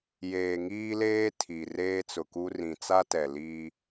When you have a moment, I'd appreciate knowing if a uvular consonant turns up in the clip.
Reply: no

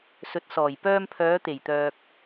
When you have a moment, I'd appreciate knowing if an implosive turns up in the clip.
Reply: no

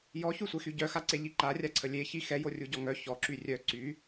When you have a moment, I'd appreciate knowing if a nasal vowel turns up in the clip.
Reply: no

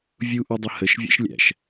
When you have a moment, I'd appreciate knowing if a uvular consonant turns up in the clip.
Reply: no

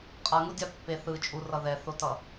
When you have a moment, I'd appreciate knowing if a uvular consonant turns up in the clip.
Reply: yes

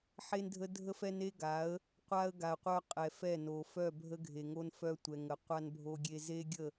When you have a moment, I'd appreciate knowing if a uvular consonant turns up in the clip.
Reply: yes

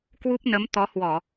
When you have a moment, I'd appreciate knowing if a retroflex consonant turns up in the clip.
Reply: no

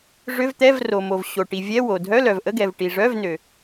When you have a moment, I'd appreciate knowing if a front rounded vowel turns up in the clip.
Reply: yes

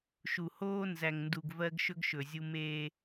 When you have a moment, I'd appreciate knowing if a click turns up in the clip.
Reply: no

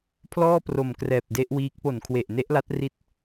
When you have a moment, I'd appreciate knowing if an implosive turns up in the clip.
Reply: no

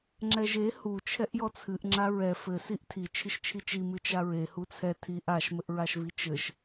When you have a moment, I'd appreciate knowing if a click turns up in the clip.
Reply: yes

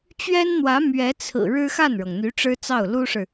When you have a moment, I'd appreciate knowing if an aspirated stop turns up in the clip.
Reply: yes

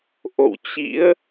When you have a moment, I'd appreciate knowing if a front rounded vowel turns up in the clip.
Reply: no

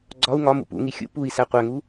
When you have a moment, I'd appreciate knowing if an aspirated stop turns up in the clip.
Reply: no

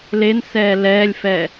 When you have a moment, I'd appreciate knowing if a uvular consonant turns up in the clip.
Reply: no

